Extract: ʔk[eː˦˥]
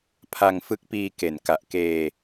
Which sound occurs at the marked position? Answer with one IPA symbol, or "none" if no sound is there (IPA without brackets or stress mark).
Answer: eː˧